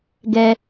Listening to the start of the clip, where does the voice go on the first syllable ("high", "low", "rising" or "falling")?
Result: low